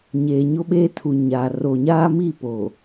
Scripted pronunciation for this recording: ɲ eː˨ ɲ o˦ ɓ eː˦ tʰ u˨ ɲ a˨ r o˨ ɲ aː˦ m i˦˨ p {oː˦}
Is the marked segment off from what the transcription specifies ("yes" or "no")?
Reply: yes